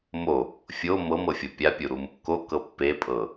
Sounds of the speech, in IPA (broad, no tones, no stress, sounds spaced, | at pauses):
m o | fʲ o m ɤ m ɤ fʲ ɤ pʲ a pʲ u ɾ u m | k o k ɤ pː e pʼ ɤ